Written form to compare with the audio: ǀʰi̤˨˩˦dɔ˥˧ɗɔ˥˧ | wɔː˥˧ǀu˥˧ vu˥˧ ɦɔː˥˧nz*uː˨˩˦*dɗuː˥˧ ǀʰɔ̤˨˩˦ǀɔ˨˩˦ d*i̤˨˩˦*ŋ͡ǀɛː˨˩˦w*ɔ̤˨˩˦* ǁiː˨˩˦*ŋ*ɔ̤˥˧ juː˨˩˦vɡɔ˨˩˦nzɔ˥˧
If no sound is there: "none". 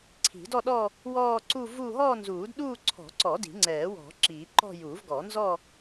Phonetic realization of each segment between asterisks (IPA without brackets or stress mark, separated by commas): uː˨˩˦, i̤˨˩˦, ɔ̤˨˩˦, ǃ